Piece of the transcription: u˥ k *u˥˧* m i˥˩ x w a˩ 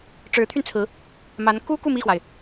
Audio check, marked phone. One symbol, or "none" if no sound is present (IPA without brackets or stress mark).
u˥˧